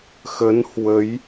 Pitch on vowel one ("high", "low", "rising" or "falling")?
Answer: rising